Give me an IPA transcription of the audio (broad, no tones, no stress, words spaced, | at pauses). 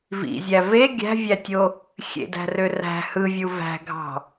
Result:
vḭzʲæ ve ɡʲæ̤vʲætʲo | xʲḛdæ̤rø ræ̤ hɯvʲu væ̤ɡʱɑ̤